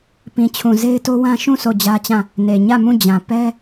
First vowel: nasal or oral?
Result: nasal